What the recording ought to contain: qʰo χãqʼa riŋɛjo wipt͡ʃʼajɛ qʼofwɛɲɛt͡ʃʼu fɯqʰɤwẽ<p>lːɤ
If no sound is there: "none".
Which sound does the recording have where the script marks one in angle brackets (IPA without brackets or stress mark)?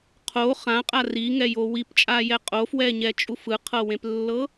p